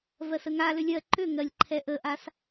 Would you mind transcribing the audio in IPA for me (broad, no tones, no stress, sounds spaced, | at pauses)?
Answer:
v ɜ s ə ŋ a l ʏ lʲ ɜ ǃ ʏ ŋ ɜ lʲ ǃʰ ɛ ʔ ə ʔ a s